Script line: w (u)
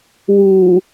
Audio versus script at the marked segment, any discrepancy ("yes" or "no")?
yes